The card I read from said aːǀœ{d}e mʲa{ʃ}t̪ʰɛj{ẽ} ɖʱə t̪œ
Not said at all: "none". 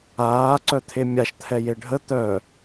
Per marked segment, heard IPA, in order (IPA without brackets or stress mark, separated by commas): t̪ʰ, ʃ, e